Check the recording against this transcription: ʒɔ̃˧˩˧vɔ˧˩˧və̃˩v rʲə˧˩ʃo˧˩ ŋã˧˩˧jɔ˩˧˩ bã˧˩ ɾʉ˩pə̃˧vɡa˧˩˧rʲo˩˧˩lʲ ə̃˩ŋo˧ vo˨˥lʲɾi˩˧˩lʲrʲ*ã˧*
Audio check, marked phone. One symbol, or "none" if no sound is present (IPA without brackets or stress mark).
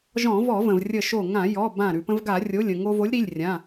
ã˩˧˩